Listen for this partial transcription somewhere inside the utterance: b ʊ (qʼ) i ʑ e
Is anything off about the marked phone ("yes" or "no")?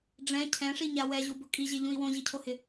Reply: yes